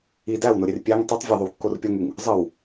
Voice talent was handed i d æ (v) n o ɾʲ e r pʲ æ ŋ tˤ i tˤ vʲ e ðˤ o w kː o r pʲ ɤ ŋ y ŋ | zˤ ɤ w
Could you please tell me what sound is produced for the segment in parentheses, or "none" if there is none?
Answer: w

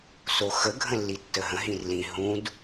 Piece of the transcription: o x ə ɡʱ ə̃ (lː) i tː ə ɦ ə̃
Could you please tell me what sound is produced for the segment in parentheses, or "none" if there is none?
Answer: lː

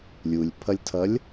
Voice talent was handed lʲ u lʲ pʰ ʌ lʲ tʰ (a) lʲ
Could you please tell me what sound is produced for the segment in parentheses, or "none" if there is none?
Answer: ʌ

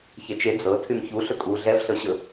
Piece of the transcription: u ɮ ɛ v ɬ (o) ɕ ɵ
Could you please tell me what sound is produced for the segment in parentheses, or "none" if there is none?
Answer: ɤ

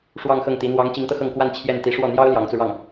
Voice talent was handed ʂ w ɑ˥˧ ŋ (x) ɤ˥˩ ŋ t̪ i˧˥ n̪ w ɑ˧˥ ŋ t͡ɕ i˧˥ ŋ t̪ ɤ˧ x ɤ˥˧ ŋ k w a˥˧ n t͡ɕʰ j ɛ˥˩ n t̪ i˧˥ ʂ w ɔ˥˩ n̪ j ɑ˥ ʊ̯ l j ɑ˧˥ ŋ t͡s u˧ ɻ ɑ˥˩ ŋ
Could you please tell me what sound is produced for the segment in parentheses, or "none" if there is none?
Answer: x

